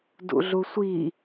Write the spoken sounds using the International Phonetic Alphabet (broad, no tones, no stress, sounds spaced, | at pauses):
d ṵ ɮ u sʷ i